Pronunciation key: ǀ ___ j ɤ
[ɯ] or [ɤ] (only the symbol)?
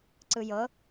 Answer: ɯ